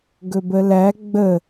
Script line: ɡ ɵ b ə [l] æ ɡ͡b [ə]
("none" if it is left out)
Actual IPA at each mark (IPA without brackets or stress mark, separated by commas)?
l, ə